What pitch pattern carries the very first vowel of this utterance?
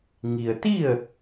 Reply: low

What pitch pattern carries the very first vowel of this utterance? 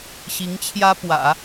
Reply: rising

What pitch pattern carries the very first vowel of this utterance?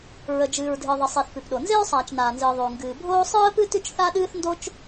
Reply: low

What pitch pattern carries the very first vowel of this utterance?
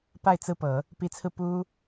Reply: falling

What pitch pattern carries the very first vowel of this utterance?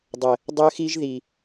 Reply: low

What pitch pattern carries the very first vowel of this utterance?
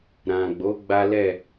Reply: low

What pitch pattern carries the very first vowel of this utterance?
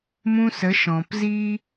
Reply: high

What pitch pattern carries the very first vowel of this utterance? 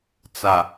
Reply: low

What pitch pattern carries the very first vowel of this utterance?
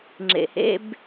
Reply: low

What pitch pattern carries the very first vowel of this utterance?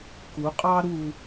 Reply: rising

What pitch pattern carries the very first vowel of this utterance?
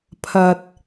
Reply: low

